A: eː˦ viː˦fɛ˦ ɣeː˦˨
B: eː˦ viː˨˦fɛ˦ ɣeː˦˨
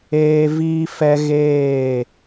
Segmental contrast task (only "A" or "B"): A